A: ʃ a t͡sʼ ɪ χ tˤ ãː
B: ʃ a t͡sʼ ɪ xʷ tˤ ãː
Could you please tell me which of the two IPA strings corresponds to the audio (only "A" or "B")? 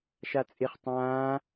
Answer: A